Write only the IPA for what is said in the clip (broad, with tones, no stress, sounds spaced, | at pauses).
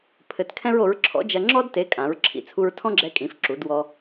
pʰ ɘ˧ t kʰ ɛ̃˥ ɹ o˨˥ ɹ ǁʰ ɔ̰˨˥ d͡ʒ ɐ˧ ŋ͡ǁ ɔ˥ d t e˨˥ kʼ ã˩˧ ɹ ǁʰ ḭ˩˧ t͡sʰ u˧ ɹ tʰ ɔ̃˥ ɡ͡ǁ ɛ˧ kʼ ĩ˩˧ f ǁ u˩˧ d w ɔ˧